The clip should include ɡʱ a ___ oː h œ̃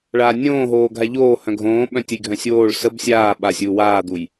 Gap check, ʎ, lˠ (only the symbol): ʎ